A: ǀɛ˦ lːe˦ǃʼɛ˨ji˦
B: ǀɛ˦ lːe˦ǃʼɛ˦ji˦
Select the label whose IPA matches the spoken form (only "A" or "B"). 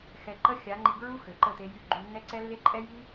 B